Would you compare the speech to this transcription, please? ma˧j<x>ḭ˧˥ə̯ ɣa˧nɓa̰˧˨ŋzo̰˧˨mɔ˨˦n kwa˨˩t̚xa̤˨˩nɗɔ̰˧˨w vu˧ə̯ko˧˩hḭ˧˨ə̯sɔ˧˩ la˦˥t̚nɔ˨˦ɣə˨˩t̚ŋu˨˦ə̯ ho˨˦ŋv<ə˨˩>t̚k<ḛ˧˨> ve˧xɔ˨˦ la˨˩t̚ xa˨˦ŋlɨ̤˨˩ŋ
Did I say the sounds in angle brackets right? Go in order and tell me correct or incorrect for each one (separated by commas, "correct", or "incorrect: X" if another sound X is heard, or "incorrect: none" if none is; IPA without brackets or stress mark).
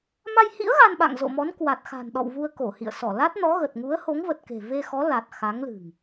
incorrect: h, correct, incorrect: e̤˨˩